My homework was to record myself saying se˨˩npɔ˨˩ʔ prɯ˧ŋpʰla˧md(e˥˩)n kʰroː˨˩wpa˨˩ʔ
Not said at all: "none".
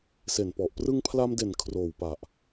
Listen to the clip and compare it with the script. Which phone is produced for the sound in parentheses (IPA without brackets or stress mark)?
e˨˩